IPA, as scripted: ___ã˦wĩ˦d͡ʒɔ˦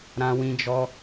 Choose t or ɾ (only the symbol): ɾ